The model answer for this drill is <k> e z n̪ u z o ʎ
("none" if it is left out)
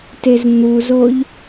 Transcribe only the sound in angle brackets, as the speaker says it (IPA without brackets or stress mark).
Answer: t